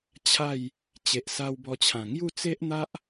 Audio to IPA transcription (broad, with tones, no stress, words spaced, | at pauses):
t͡ɕʰa˥˧j | t͡ɕe˨ʔsa˧wbɔ˧t͡ɕʰã˨˩ ŋju˥˧t͡se˦ʔn̪a˦ʔ